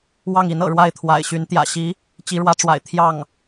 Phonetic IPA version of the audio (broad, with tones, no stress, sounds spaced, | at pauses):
w ɑ˥˩ ŋ i˧˥ n ɤ̰˨˩ ɻ w a˥˩ ɪ̯ t̪ʰ w a̰˨˩ ɪ̯ ɕ y˧˥ n t̪ j ä̰˨˩ ɕ i˧˥ | t͡ɕ i˧˥ ɻ w ä˧˥ ʈ͡ʂ w a̰˨˩ ɪ̯ t̪ʰ j ɑ˥˩ ŋ